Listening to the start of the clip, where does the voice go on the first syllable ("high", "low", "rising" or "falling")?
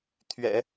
low